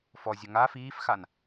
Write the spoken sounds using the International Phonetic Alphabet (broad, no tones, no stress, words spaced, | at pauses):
fɔzʲʊ ŋa fiːfxan